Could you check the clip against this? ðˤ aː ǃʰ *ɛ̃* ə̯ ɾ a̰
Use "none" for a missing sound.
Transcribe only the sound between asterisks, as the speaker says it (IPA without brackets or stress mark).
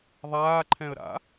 ɛ̃